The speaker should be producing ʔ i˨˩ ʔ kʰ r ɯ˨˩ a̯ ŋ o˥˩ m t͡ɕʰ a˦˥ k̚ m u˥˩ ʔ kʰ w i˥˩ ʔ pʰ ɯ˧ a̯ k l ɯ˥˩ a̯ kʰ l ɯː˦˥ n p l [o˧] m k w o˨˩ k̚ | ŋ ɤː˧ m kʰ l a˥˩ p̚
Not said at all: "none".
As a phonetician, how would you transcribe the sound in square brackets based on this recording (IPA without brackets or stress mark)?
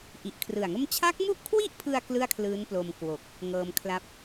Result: o˧